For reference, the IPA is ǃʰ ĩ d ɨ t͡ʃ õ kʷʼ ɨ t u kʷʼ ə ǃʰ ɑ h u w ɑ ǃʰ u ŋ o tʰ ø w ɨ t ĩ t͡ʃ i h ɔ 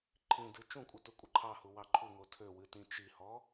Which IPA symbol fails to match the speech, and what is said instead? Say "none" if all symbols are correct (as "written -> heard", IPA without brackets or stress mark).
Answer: õ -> ũ